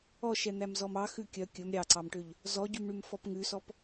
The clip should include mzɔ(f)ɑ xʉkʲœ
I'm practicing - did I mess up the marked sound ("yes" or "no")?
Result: yes